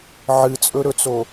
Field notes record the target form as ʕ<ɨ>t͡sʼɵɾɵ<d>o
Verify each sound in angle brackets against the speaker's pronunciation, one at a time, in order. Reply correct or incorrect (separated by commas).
correct, incorrect